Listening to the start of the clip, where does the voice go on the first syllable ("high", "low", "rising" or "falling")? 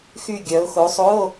falling